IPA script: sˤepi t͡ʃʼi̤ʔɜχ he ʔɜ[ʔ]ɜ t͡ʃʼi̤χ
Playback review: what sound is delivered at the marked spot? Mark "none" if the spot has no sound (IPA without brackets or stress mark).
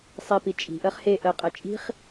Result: qʼ